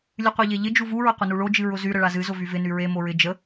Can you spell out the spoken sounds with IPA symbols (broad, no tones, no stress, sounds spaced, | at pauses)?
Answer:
lʲ ɨ qʷ e ʎ e ʎ ɪ d͡ʒ u v u ɹ ʊ qʷ ɪ n u ɭ o d͡ʒ ɨ ɹ ʊ z y ɾ ə ɭ a z ɨ z ʊ v y v ɪ n y ɹ e m o ɹ ɪ d͡ʒ ə